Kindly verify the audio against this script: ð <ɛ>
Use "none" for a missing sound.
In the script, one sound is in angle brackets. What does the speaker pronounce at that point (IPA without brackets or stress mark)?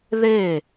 e